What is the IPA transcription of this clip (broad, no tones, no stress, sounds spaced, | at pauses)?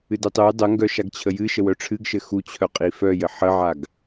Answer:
ɨ d ɘ tˤ ø j dˤ ə ŋ ɡ œ ʃ a ɡ t͡ɕʰ ə j ɨ ʃ ə w œ ʈ͡ʂʰ ɨ ɡ ʃ ɘ x u t͡ɕʰ œ qʼ i f œ j ɘ ħ ə ʕ a ɡ